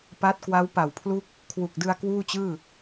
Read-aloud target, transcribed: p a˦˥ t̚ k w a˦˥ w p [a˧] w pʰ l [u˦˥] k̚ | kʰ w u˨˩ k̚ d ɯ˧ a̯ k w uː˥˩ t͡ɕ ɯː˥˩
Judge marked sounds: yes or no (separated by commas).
no, no